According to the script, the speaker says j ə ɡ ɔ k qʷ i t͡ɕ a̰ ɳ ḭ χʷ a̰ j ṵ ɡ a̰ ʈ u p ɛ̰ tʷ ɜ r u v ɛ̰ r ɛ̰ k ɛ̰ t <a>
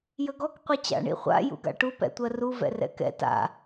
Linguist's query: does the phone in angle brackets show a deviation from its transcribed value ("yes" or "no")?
yes